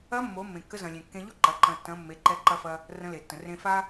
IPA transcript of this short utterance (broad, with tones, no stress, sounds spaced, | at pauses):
ɐ˧˥ mː o˩˧ mː ẽ˩ kː ə˧˥ z ɐ̃˩ lʲ ẽ˩ kː ẽ˧ ʎ o˥ ǃ ɐ˩˧ ǃ ɐ̃˩ tː ɐ̃˩˧ mː e˩˧ ǃ ɛ˧ ǃ ɐ˧ f ɐ˧ | r ə̃˧˥ l e˩ tː ə̃˩ r ẽ˧ f a˥